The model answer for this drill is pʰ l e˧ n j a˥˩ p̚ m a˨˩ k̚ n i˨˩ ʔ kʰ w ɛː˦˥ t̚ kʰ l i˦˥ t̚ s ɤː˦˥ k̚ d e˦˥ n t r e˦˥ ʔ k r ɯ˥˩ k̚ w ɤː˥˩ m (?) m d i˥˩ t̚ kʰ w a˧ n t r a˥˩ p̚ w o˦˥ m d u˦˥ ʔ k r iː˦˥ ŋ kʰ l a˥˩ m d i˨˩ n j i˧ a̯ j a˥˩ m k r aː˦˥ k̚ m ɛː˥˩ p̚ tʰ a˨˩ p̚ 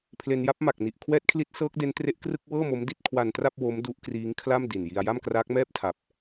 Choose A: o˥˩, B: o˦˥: B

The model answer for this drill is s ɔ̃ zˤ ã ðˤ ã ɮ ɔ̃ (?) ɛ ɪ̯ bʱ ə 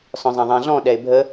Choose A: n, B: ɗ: B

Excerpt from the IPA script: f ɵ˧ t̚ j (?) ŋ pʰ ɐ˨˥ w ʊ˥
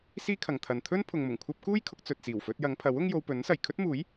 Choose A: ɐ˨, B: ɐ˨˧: B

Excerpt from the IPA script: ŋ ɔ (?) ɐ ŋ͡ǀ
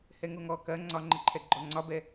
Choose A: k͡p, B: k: B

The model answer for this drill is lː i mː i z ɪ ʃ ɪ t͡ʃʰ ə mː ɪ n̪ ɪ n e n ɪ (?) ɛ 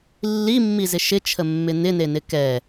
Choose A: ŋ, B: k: B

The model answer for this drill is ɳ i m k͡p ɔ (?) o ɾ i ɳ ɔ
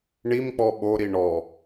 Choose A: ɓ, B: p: A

